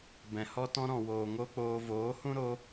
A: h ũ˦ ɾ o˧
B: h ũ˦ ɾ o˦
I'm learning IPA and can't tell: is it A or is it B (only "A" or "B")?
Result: B